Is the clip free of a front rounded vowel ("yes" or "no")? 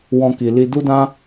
yes